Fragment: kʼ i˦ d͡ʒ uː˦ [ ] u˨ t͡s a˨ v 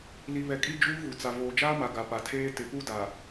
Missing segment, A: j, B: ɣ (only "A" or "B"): B